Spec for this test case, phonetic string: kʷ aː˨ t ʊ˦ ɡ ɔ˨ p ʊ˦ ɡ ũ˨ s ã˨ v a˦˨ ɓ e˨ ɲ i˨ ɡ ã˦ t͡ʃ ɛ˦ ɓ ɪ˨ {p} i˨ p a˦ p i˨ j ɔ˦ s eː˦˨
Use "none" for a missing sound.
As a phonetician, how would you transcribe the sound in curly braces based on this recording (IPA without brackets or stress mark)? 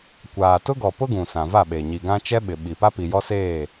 ɓ